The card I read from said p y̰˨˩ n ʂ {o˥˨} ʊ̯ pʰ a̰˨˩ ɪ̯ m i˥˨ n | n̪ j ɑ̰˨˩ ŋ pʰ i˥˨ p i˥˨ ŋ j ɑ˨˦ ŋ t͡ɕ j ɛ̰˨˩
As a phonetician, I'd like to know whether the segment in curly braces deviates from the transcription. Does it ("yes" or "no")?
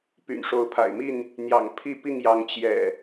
yes